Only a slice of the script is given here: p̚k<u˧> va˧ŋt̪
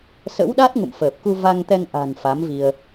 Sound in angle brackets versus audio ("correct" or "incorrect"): correct